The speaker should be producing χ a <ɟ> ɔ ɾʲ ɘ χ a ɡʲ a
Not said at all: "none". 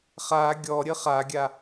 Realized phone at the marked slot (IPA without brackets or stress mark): ɡʲ